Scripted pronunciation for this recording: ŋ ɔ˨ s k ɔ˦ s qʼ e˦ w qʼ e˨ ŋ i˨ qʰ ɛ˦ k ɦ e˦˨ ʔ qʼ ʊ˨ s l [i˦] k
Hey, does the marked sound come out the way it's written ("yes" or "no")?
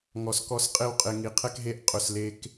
no